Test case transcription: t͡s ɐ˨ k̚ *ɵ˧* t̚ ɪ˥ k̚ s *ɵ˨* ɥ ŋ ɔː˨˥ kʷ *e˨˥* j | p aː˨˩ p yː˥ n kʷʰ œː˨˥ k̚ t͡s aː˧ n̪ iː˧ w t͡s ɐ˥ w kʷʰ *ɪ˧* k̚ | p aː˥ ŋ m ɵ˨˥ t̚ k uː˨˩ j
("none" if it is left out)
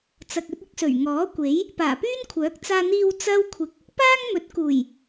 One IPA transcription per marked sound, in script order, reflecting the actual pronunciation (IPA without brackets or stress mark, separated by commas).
ɵ˧, ɵ˨˩, e˨˥, ɪ˧